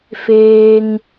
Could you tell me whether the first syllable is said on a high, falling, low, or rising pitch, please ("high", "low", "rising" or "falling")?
low